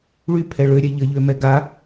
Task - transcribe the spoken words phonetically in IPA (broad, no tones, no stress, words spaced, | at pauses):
ɭypʰɛ ɭøɾʲɛ ʎəʎømɛ ɡa